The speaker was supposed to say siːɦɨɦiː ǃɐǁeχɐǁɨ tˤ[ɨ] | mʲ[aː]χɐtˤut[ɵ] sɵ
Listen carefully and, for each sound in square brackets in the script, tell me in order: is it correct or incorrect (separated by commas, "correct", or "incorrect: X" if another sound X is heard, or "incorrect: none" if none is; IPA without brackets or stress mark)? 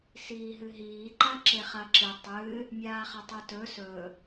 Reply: correct, correct, correct